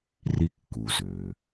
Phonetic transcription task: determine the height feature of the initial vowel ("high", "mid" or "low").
high